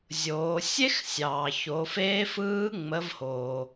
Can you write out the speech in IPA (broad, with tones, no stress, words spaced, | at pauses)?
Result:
zʲoː˩˧ sʲe˥xsʲɑː˩ ço˩˧feː˧˥fɯː˧˥ ŋ͡mə˩˧vhoː˩